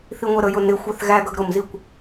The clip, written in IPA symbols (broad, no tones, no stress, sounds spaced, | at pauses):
θ i ŋʷ ɛ ɾ ə j ʊ n ɪ xʷ ɛ θ ɣ æ ɡ ʌ ɡ ɾ ʊ m z i kʷ